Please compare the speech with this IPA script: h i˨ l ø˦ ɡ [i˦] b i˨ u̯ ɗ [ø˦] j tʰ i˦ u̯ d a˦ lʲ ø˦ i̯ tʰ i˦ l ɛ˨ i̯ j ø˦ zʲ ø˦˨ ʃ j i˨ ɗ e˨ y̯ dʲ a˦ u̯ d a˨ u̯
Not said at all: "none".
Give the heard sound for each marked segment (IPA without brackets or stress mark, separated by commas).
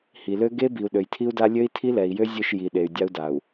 e˦, ø˨